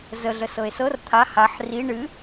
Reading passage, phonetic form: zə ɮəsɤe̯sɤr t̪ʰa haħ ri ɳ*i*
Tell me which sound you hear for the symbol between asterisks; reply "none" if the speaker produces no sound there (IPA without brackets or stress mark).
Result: ɨ